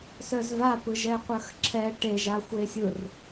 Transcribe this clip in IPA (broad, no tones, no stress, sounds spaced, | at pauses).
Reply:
s œ z v a p ɯ ʒ ɛ qʷ œ x ǁʰ ɛ ʈ e ʒ a xʷ e sʲ ɯ r